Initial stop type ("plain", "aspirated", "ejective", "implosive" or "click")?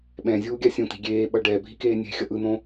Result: implosive